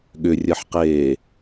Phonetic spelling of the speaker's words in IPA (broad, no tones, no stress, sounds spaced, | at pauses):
ɠ ʏ rʲ ɜ ħ q eː